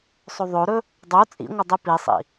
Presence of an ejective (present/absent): present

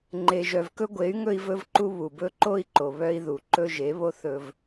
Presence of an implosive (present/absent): absent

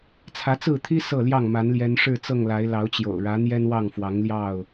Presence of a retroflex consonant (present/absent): present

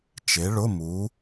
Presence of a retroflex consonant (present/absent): present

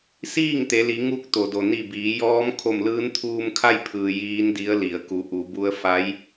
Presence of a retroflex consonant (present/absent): absent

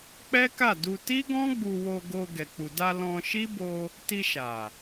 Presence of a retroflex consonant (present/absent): absent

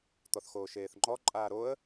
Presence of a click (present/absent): present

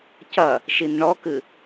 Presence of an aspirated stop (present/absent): absent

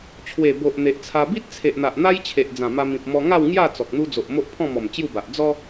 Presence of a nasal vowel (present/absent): present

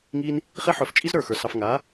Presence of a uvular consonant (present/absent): present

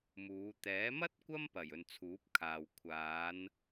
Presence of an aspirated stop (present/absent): present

